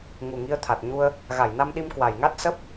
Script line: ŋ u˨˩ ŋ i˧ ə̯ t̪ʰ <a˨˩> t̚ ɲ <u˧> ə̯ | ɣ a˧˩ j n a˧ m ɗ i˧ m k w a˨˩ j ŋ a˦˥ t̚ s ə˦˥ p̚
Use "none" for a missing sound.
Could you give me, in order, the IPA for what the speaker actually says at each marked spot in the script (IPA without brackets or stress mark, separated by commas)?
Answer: a˨˩, u˧